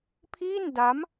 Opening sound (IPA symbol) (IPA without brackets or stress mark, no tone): pʰ